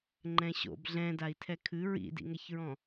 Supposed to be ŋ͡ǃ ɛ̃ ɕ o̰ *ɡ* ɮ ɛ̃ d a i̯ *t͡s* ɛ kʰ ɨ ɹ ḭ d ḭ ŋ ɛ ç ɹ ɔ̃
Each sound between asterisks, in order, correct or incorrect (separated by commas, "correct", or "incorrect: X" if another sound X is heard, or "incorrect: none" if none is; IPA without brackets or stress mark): incorrect: b, incorrect: tʰ